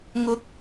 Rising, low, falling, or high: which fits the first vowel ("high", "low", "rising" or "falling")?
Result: rising